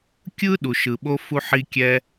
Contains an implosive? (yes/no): yes